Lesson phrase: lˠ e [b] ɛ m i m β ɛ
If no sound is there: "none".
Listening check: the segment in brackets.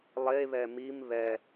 β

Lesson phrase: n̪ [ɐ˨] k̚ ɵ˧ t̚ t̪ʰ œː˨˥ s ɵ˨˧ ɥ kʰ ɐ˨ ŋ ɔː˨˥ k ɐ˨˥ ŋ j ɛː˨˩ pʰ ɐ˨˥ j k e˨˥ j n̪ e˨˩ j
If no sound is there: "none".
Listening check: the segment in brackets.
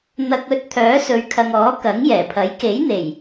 ɐ˨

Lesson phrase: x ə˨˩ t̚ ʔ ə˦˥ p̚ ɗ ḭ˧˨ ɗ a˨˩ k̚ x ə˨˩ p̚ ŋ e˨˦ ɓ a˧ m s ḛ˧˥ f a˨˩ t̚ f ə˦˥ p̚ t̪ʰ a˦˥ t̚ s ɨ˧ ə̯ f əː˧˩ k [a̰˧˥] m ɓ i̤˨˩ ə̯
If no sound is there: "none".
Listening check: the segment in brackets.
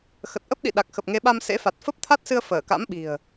a̰˧˥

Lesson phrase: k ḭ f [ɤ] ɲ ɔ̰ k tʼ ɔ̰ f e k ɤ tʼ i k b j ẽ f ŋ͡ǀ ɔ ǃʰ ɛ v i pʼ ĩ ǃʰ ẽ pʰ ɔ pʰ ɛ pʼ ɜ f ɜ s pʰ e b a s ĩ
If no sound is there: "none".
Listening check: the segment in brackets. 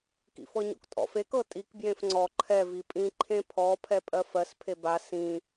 ɤ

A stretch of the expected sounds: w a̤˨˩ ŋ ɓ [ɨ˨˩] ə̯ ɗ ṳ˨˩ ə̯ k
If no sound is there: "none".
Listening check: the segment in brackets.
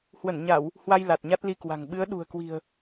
ɨ˨˦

